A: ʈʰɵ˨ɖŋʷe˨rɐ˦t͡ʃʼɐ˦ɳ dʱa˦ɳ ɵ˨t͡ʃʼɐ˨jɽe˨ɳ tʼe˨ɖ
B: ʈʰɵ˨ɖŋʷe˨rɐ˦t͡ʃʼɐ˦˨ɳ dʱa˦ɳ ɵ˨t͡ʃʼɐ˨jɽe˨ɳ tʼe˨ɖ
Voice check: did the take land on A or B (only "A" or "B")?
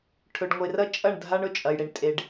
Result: B